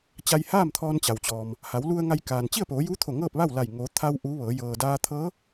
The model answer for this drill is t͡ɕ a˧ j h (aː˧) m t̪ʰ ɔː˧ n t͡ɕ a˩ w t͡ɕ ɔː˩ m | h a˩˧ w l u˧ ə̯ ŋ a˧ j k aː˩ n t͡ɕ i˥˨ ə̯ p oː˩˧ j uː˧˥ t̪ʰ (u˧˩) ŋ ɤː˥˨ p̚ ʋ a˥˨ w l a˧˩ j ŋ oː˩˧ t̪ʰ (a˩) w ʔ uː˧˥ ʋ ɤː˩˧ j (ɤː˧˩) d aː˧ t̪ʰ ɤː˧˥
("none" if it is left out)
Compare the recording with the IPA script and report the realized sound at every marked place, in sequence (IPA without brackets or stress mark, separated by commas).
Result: aː˥˨, o˧˩, a˧, ɤː˩